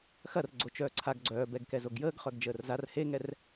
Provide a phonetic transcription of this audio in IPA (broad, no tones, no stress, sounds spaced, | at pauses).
x ɐ r ɡ͡ǀ o t͡ʃ œː ǀʰ a ɡ ɡ͡ǀ œː b ɛ ɡ k ɛ z o ɡ j əː ɡ χ œ ɡ d͡ʒ əː r z a r h e ŋ ɛ r